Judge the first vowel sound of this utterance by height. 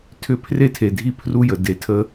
high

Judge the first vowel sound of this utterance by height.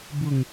high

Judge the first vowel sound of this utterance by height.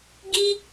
high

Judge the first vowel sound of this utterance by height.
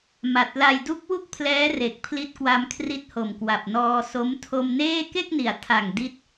low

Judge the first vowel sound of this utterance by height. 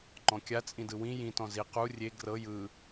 mid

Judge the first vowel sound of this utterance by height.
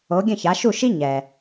mid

